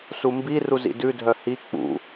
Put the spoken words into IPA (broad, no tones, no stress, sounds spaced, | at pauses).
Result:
s u m b i r u z ḭ d ʉ dʱ œ h i k͡p ṵ